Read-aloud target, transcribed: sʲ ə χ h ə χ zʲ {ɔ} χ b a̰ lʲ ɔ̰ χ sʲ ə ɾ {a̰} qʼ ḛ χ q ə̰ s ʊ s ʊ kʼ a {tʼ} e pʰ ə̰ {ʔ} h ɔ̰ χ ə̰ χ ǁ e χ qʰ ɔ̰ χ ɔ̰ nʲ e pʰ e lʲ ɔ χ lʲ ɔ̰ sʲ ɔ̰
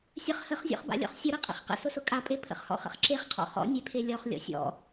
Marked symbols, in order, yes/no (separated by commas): no, no, no, no